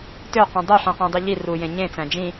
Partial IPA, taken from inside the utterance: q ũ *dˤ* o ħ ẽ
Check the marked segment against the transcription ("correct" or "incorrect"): correct